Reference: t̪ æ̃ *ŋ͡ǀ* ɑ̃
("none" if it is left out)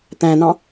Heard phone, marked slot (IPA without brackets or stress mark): n̪